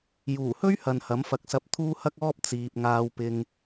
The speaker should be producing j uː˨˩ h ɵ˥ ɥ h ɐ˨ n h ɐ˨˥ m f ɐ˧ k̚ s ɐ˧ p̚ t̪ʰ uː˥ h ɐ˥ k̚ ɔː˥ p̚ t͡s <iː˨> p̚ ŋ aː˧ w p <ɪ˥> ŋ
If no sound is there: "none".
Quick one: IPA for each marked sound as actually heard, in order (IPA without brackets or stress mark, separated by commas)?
iː˨, ɪ˧